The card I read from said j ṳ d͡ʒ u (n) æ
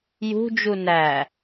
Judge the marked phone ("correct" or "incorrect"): correct